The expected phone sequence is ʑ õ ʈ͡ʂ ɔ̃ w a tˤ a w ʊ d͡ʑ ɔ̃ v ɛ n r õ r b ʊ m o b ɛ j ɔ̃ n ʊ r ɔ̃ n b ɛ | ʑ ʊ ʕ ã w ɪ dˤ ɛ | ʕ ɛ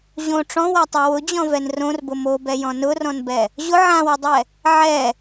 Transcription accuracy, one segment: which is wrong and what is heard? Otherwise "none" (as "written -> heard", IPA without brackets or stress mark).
none